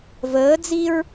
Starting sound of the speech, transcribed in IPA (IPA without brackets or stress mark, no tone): v